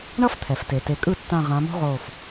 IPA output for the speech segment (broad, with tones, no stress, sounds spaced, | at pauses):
ɳ ʌ˥ f t̪ʰ ɛ˩ f t e˩ t e˩˧ kʼ ɯ˥˩ tː ã˧˩ ʁ ã˩˧ m o̤˥ ʁ oː˧˩ f